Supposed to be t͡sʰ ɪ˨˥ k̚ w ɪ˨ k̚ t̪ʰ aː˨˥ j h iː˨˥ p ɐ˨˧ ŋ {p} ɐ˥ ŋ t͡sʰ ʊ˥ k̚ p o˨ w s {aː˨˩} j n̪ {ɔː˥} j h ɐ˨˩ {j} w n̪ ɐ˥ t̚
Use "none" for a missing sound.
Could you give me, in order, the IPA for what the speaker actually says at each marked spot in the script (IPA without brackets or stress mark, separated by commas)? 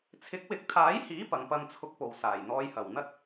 p, aː˨˩, ɔː˧, none